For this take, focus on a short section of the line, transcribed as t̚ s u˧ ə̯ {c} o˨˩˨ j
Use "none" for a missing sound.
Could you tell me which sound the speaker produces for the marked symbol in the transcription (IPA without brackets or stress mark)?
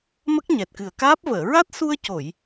c